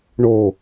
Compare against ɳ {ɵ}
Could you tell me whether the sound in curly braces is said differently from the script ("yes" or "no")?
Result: yes